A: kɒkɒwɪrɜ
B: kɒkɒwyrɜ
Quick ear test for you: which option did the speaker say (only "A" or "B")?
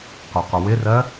A